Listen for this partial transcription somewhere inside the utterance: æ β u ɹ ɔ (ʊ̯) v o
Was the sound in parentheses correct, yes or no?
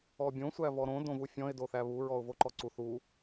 yes